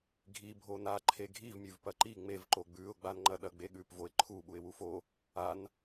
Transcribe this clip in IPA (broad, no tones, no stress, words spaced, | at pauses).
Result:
ɡʱi bʱona ǃʰeɡʱivmʲʉv pɐǃi ŋ͡mev ǃoɡ͡bʉʊ̯ɡ͡ban ŋ͡ǃɐɗɐɡ͡beɠʉp voɪ̯ǃʰu ɓuɪ̯wufo | an